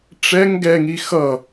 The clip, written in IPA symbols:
ʈ͡ʂɛŋ ɡɛŋi xʌ

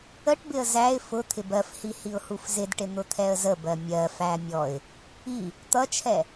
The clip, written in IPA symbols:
əʈbɪə̯ zæɪ̯ fʊ t̪ʰɪbɜfhi hiʊ̯hufzɪdʈɪ n̪ʊt̪ʰɛə̯zəbɜ mʲɜfæ mʲɔɪ̯ | i | t̪ʌt͡ʃʰɛ

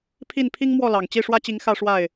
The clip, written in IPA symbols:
pʰi˥˨n pʰi˦ŋ mwɔ˥˨lɑ˨˩ŋt͡ɕi˥˨ ʂwä˦t͡ɕi˨˦ŋ xä˦ʂwa˥˨ɪ̯

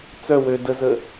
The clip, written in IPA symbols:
t͡sœ wø dəzə

